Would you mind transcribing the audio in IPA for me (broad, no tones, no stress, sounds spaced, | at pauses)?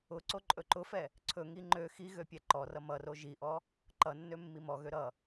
ʊ ǀ o ǃʼ ɵ ǃ ʊ f ɛ | ǀʰ ɵ ŋ i ŋ͡ǃ ø x i ɣ ø pʲ ɛ ǃ ɔ r ʌ m ʌ r o ʒ i ʔ ɔ | ǃ ʌ nː ø mː i m ɔ ɣ ø ɾ ʌ